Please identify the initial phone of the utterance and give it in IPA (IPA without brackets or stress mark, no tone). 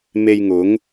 m